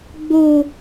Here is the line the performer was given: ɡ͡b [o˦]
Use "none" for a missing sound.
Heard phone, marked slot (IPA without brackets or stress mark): o˦